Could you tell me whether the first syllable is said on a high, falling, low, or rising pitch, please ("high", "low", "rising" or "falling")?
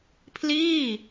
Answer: falling